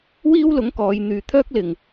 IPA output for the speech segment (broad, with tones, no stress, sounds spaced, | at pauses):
w iː˥ w l ʊ˨˥ ŋ k ɔː˨˧ j n̪ yː˧ t̪ʰ œː˥ k̚ l ɪ˨ ŋ